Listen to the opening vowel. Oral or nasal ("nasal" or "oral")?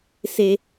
oral